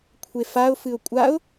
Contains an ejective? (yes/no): yes